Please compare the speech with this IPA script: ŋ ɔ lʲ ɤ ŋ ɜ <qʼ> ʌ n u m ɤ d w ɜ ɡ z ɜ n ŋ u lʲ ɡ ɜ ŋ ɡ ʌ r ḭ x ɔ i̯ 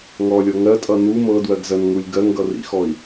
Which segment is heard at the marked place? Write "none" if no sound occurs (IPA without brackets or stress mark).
tʼ